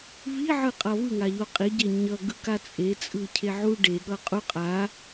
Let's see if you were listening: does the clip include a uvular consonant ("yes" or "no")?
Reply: yes